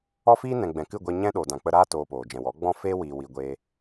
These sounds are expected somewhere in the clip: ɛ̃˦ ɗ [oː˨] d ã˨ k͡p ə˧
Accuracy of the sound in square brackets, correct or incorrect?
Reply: correct